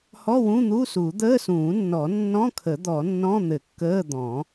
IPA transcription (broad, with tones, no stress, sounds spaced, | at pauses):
h ɔ˧˥˧ w ũ˧˥˧ n̪ u˧˥˧ s u˨˩˦ d̪ əː˧˥˧ s ũː˨˩˦ nː ɔ˨˩˦ nː ɔ̃˧˥˧ kʰ ə˨˩˦ d̪ ɔ˨˩˦ nː ɔ̃˧˥˧ n̪ ɘ˨˩˦ kː əː˧˥˧ d̪ ɔ̃˨˩˦